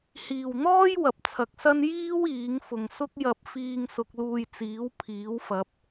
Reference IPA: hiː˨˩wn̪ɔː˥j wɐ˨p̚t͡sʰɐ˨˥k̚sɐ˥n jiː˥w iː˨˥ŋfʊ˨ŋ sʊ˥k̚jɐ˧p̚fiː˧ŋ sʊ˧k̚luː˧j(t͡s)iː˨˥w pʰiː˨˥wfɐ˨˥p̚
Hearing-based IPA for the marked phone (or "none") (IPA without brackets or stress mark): t͡s